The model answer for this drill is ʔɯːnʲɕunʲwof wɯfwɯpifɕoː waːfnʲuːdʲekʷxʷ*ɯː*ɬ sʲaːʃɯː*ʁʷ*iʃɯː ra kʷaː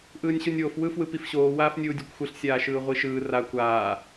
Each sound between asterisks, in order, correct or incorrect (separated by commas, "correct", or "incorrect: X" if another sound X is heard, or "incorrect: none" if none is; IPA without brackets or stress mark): incorrect: ɯ, correct